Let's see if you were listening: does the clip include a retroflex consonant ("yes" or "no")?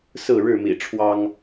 yes